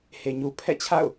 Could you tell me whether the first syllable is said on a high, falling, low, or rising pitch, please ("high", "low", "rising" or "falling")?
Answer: low